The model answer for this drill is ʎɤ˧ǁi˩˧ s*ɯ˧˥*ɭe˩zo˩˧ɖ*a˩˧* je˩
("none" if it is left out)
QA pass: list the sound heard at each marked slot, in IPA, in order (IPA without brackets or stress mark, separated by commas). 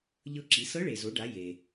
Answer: ɤ˧˥, a˩˧